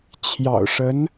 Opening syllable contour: low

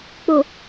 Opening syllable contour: low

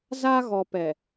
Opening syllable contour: high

